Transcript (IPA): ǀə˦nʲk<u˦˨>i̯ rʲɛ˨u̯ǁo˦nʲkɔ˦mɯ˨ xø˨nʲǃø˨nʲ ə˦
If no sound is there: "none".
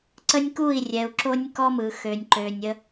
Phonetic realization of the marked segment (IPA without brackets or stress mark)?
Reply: u˦˨